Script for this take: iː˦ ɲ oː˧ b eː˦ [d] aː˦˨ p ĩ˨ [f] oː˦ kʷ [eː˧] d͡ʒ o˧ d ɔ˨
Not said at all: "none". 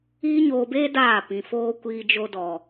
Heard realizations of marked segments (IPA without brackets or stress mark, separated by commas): d, f, iː˧